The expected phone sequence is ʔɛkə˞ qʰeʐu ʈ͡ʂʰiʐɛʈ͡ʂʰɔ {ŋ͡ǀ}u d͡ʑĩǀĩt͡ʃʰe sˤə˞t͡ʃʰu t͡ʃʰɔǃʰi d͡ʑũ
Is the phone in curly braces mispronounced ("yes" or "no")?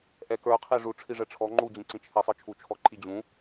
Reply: yes